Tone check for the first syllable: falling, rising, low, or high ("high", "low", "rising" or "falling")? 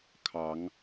rising